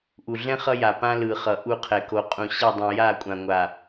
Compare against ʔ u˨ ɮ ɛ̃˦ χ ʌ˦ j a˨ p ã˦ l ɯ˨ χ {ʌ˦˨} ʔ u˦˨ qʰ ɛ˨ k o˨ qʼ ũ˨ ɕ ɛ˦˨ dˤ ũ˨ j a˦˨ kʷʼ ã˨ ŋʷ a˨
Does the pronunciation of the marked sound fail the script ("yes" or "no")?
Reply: yes